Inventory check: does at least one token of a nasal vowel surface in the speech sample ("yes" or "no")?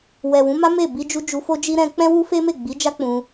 yes